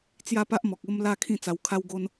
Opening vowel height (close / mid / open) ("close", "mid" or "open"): open